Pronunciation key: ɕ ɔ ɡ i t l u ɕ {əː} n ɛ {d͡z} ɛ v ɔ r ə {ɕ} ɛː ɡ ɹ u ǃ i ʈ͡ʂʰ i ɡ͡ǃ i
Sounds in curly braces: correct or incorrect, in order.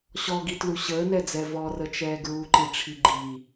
correct, correct, incorrect

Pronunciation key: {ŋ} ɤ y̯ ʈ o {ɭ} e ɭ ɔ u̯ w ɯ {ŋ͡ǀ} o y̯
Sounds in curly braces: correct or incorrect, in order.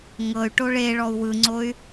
correct, correct, correct

